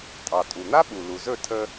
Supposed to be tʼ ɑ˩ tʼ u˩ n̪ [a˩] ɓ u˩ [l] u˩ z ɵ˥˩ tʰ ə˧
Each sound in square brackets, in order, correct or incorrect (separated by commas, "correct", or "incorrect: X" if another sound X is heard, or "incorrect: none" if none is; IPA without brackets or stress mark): incorrect: a˥, correct